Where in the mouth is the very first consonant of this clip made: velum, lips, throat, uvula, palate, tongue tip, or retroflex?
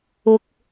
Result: velum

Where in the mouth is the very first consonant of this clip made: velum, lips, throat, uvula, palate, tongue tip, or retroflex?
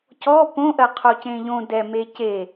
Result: palate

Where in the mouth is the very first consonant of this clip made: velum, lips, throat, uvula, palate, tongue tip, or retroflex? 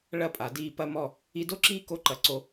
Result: retroflex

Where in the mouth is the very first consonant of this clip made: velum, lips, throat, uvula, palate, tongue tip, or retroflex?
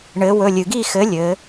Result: retroflex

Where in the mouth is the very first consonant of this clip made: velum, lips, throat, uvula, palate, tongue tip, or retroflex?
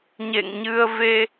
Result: palate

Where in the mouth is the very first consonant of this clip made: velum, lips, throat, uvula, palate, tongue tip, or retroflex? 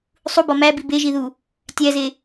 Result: tongue tip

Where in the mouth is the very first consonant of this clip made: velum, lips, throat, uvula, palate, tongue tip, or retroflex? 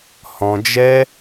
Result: throat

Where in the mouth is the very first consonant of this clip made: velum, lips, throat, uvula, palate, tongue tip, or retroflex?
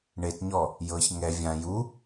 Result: retroflex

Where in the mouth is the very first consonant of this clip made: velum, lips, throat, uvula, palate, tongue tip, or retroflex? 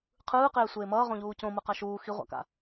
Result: uvula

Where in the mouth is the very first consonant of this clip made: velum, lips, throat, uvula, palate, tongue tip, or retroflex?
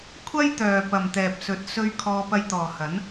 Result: velum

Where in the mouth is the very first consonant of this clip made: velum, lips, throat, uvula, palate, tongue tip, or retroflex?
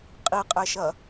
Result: uvula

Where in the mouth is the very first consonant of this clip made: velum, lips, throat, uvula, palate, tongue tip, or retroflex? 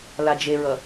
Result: tongue tip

